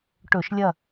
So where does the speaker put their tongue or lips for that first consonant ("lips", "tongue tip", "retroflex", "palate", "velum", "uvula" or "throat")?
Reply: retroflex